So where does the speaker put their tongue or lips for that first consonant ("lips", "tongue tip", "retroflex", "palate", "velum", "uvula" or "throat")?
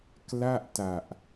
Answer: velum